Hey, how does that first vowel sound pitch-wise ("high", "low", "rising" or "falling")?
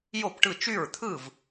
falling